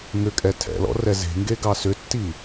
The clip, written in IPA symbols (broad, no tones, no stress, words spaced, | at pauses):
ŋʏkʼɛ tʰɛ̰lɔ̰rɛ ze̤ŋɡeɡɑ sʏtːi